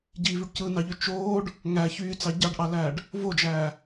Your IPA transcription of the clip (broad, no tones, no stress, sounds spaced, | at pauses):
ɟ i v y ɖ c ɯ n ɑ ʎ ø t͡ʃ oː ɖ | ŋ æ ç yː t͡s ɑ ɟ ɑ ɖ ʔ ɑ l æː ɖ | v o d͡ʒ æː